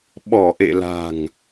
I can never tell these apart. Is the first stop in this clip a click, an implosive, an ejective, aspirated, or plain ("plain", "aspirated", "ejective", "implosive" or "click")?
implosive